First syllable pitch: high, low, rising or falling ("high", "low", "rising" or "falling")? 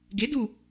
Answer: rising